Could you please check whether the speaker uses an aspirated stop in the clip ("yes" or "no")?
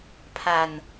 yes